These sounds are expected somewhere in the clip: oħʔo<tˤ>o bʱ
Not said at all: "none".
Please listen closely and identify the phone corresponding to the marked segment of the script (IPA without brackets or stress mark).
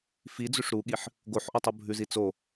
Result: tˤ